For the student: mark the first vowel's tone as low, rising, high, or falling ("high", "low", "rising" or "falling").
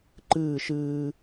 falling